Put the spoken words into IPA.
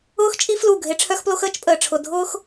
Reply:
ʊː˦ x t͡ʃʼ i˦ f l u˦˨ ɡʱ e˦ ʈ͡ʂʰ œ˦ x p l o˦ x əː˦ t͡ʃ pʼ əː˨ ʈ͡ʂʰ ʊ˨ dʱ ʊː˦ x

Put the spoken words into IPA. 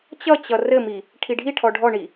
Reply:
t͡ɕ ʌ t͡ɕ ʌ r ɘ m i | ʈʰ i ɖʱ i ʈʰ ɔ ɖʱ ɔ ɳ i

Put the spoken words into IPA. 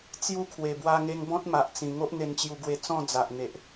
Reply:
t͡s j u˥˧ kʰ w e˨˩ b w a˧ ŋ e˧ ŋ b ɔ̃˦ t̚ m a˨ ʔ t͡s ĩ˨˩ ŋ o˦ ʔ n̪ e˧ n t͡ɕ j u˧ ɡ w e˧ t͡s ɔ̃˥˧ d͡z a˨ ʔ n̪ e˨ ʔ

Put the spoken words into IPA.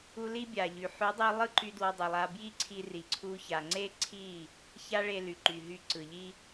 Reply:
u˧ l i˦ bʲ a˨ ʎ y˨ ħ y˨˦ dˤ i˧ lˠ ɯ˦˨ ǃ y˧ d w ɔ˧ dˤ i˨ lˠ a˧ b j i˦ ǀʰ i˧ r i˨ ǀʰ u˧ ç a˨ ŋ͡ǀ e˦ ǀʰ i˦˨ | ç a˦ ɭ e˧ l y˨ ǃ y˨ ɦ y˧ ǀ ɯ˨ ʎ i˦

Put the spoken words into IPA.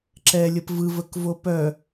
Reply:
ǁ ɛ lʲ ə p v ɯ v ə k v o p œ

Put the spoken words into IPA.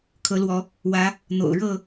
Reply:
kʰ ɤ˨˦ l w ɔ˨˦ | w ä˨˦ | n̪ o̰˨˩ ʊ̯ ɻ ɤ˥˨

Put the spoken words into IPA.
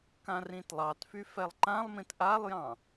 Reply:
k ã r ĩ t lˠ ɑ t f y f ɛ lˠ ǃ ã lˠ m ĩ t ʔ a lˠ j ɑ̃

